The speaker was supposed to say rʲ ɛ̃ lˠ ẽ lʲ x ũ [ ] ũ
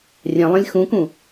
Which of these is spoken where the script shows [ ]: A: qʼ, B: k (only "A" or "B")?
B